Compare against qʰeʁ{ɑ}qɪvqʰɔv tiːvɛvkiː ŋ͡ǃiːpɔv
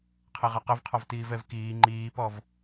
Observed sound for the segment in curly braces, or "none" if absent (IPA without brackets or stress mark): a